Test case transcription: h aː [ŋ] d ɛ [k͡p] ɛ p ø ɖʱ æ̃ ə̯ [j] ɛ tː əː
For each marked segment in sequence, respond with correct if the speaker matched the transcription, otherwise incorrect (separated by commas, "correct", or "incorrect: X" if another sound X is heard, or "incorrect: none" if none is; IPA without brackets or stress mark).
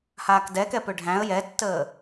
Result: incorrect: k, incorrect: k, correct